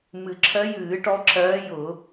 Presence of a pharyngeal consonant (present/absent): absent